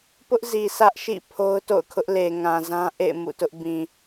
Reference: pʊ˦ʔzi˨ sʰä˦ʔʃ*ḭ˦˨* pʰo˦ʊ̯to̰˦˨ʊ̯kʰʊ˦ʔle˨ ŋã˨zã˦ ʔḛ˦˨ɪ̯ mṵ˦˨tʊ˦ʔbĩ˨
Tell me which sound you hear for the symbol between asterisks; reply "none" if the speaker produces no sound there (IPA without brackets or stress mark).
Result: ḭ˦˨